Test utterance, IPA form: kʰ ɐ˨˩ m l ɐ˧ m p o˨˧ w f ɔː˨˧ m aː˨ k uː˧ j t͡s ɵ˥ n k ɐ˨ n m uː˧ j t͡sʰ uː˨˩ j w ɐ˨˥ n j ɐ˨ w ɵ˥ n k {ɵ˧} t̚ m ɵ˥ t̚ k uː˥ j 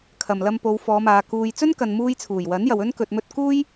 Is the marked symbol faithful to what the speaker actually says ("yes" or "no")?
yes